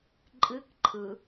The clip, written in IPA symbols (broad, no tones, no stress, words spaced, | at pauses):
ǃʼɨk ǃʰɯ